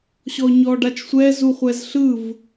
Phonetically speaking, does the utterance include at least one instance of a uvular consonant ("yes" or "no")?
yes